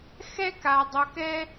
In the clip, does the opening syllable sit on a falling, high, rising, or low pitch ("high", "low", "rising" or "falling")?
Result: high